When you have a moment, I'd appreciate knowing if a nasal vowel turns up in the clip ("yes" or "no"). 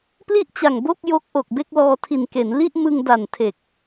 no